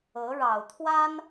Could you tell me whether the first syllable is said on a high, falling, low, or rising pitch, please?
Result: rising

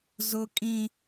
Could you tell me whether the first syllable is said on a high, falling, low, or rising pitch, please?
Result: high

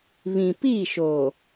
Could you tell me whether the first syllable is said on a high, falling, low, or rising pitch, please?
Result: low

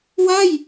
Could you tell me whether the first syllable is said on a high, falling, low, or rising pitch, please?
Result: falling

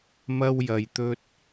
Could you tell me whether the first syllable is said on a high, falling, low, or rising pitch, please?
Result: high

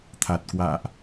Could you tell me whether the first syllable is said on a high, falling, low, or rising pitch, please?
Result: low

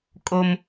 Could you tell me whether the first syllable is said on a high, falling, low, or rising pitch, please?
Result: low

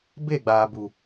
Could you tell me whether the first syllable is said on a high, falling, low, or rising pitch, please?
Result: falling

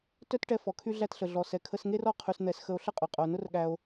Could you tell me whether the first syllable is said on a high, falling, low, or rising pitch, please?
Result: high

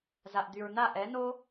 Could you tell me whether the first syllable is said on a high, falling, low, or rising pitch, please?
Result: low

